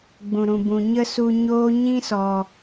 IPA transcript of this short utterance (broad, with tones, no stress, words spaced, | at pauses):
ɡ͡bũ˨ɾũ˨ bũ˨ɲə˦su˧ɲoː˦ ɲĩ˦sɔ˨